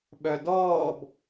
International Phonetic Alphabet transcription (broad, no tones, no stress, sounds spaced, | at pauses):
ɓ œ d ɔː b